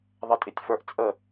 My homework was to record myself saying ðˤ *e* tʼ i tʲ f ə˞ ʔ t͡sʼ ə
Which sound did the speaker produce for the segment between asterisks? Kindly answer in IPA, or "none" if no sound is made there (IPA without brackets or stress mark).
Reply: ɛ